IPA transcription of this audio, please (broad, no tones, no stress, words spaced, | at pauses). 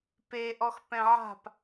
pe ʔɔxpɛ̃ʕa̤p